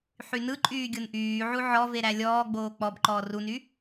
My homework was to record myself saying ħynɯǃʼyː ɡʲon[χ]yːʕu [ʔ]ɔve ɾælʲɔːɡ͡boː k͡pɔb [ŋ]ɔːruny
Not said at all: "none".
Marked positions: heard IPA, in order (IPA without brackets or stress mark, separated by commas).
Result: ʔ, ʕ, ǃ